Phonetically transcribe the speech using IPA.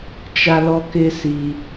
t͡ʃ a˦ l ɔ˦ k ɪ˦ s i˧

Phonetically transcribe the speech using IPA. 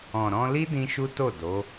ɔ̃˨ ɾ ɔ̃˧ l i˦ d ĩ˦ ʃ u˦ t o˦˨ d o˨˦

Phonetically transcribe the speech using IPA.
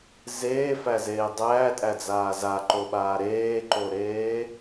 z eː f æ z eː dˤ æː tʼ æ d͡z aː z a ǃ o ɓ aː ɾ eː ǃ o ɾ eː

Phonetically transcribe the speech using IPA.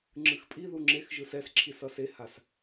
ŋ͡ǁ ɯ x pʼ i ð u ŋ͡ǁ e x ʒ ɯ s ɛ s ǁʰ i s ʌ s e h a s

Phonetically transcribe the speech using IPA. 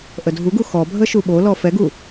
ʔ ə dʱ u ɡ u x ɔ bʱ ə ʃ u ɓ o l ɔ f ɛ ɡ u

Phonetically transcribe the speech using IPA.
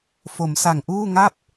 f o˩˦ m s a˨˩ ŋ ʔ uː˥˩ ŋ a˥˩ p̚

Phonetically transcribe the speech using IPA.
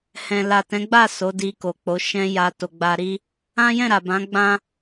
h ɛ̃˨ l a˨ t ɛ̃˨˦ ɡ͡b a˦˨ s o˨˦ d i˧ k o˨ k͡p o˨˦ ʃ ɛ̃˧ j a˧ t o˨ ɡ͡b a˧ ɾ i˦ | ã˦ j ɛ̃˦˨ ɾ a˨ b ã˨˦ ɡ͡b ã˦

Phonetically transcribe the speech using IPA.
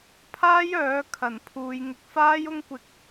pʰ aː˥ j œː˨˥ kʰ ɐ˨˩ n pʰ uː˨˧ j ŋ ɪ˧ k̚ f aː˥ j ʊ˥ ŋ kʷ ɪ˧ k̚

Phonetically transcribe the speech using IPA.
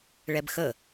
ɭ ɛ b x ə

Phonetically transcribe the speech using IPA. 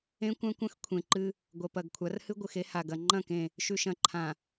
ẽ˦ kʷ ã˦ kʷ ɐ̃˦ x kʷʰ ẽ˨ ǃ ɨ˦ | ɡʷ ɐ˨ p ɐ˨ ɡ kʷʰ a˨˦ r h ɨ˦ ɡʷ ɨ˨ x e˦ h a˨ ɡ ɐ˨ ŋ͡ǃ ɐ̃˦˨ k ẽ˦˨ | ʃ ʉ˨ ʃ ɐ̃˨ ǃʰ ã˨

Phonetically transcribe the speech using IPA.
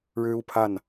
ɻ ɻ̩˦ u˨˩ pʰ a˥˨ n

